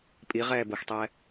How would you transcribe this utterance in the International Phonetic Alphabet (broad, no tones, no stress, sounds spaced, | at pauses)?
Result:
pʼ i ʁ ɛː b ə x tˤ ɛ